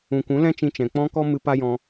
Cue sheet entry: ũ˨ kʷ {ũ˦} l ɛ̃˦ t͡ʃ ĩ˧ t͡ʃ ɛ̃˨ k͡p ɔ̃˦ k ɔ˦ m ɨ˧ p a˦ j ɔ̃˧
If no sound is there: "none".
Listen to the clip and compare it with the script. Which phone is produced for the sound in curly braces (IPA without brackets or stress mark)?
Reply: ũ˨˦